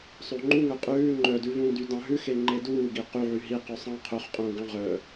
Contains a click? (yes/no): yes